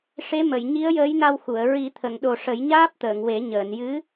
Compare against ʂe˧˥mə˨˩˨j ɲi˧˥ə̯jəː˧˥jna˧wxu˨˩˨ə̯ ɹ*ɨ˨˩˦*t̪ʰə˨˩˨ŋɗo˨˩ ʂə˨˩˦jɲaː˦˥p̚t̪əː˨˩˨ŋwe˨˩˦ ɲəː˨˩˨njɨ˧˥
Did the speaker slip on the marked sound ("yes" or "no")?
yes